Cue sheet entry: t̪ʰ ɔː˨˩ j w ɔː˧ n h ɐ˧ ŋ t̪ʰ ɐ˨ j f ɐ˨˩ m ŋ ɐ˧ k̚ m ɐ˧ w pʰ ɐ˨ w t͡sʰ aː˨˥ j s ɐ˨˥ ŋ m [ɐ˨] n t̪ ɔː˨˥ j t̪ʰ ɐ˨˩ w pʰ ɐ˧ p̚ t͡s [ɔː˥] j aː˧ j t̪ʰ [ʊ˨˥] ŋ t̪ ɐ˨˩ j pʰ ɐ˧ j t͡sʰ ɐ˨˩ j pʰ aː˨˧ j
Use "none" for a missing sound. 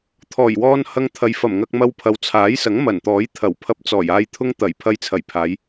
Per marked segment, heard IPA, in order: ɐ˨˩, ɔː˨˩, ʊ˥

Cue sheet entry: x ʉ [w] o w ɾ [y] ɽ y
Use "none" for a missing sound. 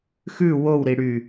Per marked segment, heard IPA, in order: w, i

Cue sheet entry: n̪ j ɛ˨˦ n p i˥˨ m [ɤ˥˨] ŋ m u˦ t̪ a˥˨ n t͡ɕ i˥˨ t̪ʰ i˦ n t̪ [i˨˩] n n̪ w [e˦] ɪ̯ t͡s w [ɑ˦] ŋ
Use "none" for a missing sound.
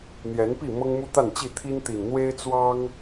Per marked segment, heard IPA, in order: ɤ˦, i˨˩, e˦, ɑ˦

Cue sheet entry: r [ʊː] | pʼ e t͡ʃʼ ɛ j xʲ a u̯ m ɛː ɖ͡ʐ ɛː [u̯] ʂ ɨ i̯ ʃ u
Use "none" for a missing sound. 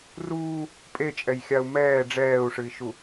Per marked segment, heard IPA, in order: uː, u̯

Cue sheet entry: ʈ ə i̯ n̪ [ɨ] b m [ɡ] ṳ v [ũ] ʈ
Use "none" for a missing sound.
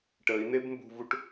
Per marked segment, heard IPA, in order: e, b, u

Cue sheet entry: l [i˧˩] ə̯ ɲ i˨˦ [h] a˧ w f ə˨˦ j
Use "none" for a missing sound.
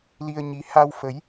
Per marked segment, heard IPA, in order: i˧, h

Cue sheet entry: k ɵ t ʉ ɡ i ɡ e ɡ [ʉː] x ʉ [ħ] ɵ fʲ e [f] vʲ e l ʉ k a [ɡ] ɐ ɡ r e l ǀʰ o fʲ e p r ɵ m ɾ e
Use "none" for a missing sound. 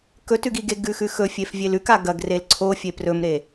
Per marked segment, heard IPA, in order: ʉ, x, f, ɡ

